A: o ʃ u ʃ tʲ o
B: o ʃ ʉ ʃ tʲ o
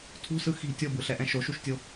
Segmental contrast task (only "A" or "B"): A